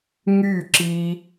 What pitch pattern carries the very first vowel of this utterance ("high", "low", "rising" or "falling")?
falling